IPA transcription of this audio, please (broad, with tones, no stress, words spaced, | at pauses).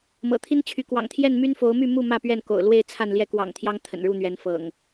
mɤ̰˨˩t̪ʰi˦nt͡ɕʰy˨˦ kwɑ̰˨˩ŋt̪ʰjɛ˥˨nmy˦nfo˨˦ʊ̯ my˥˨mu˥˨ mä˥˨pɥɛ˥˨nko̰˨˩ʊ̯ lwe˥˨ɪ̯t͡sʰa˥˨nljɛ˥˨ kwɑ̰˨˩ŋ t̪ʰjɑ˦ŋt̪ʰə̰˨˩nɻu˥˨n̪ɥɛ˨˦n fɤ̰˨˩ŋ